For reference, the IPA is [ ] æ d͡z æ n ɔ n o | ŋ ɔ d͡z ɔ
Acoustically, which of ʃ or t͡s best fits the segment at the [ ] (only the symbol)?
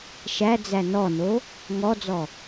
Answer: ʃ